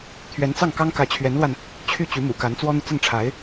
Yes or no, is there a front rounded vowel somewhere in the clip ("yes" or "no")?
yes